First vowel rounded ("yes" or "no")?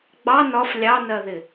no